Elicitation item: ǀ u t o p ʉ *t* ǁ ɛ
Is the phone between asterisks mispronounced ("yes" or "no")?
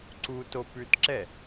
no